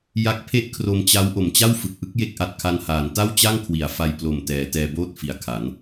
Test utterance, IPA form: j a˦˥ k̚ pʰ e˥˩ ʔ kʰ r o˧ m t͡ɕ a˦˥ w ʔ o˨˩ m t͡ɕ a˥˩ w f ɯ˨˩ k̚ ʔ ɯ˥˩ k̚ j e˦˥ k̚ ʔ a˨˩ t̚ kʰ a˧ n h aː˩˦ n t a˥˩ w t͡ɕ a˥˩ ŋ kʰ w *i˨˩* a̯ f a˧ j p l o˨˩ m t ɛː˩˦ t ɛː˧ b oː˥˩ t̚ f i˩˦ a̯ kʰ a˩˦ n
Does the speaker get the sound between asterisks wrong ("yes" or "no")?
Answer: no